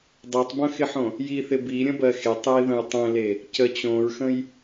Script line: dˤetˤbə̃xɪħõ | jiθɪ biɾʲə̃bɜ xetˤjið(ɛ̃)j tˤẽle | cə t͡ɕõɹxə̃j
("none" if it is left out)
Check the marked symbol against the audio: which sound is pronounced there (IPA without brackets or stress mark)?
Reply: ə̃